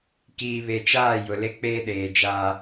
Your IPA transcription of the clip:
k iː˨ β e˨ t͡ʃ aː˦˨ j ʊ˨ l e˦ k͡p eː˦ ɗ eː˨ d͡ʒ aː˦

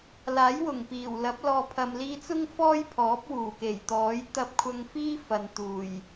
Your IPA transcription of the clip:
l aː˨˥ j w ʊ˨˩ ŋ p iː˨˩ w l ɐ˨˥ p̚ l ɔː˨ pʰ ɐ˨ m l iː˧ t͡s ʊ˥ ŋ f ɔː˥ j pʰ ɔː˨˥ p̚ w uː˨˩ k e˨˩ j t̪ ɔː˨˥ j t̪ ɐ˧ p̚ kʷʰ ɐ˧ ŋ f iː˥ f ɐ˨ n t̪ uː˨˩ j

